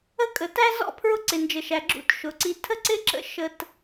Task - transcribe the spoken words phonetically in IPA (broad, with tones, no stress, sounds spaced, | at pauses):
ə˥ kʼ ə˩ t æ˥ z ɔ̰˥ pʰ ɹ ʊ˥ ǀ ɪ˩ n d͡ʒ ə˩ ʃ æ˩ ɡ͡ǁ ṵ˥ t ʃ ʊ˩ ǀ i˧ tʰ ə˥ ǀ ɪ˥ ǁ ə̰˧ ʃ ə˥ t